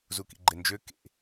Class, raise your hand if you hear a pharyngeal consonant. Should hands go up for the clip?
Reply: no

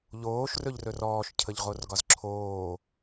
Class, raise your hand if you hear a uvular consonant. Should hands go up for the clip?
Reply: yes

